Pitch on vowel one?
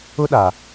high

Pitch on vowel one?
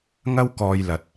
high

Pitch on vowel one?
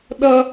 high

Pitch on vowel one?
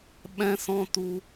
high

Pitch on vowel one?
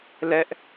high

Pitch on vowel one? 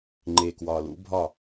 low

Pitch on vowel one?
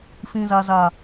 low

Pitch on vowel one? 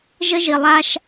high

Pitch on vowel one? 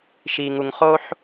low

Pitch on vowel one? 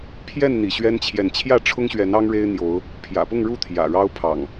falling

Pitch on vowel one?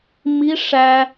high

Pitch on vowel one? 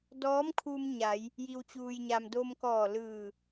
rising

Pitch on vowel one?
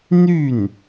falling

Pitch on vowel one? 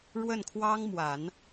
falling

